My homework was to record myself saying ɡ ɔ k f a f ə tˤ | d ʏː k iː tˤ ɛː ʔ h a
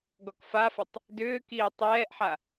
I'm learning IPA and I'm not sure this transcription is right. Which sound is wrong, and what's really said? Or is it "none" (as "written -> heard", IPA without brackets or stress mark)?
h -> ħ